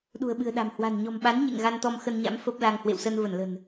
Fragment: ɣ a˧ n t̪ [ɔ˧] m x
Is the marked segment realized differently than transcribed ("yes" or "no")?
no